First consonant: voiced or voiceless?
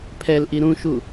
voiceless